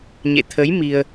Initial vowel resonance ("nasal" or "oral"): oral